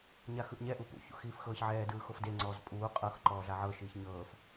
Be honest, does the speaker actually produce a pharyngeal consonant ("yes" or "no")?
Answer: yes